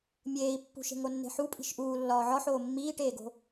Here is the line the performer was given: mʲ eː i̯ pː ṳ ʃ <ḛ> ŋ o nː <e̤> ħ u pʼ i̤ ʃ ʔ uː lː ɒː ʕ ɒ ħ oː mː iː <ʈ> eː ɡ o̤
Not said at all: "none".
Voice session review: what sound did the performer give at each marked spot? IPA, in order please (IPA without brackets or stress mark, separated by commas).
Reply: e̤, e̤, ʈ